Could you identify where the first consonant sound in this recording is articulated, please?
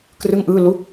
velar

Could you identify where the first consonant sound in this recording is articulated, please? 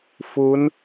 labial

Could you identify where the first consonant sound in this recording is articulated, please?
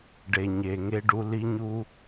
retroflex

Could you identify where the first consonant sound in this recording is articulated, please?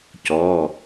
palatal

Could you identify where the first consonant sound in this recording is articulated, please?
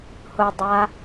glottal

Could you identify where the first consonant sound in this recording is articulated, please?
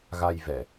velar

